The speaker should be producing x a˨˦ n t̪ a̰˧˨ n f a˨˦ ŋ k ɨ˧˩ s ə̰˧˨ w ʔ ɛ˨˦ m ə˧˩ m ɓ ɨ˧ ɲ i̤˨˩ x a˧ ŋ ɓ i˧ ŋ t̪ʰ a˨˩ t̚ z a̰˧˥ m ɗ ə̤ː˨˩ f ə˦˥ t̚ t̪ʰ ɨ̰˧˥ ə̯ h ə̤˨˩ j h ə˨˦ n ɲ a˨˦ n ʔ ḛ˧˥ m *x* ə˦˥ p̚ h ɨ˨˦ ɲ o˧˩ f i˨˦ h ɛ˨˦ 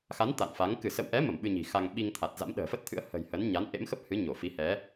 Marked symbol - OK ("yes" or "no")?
yes